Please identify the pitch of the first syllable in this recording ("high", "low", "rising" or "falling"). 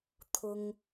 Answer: high